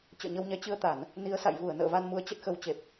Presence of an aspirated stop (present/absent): absent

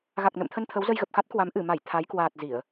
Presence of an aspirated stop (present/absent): present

